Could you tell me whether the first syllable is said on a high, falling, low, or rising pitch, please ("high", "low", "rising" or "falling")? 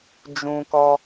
high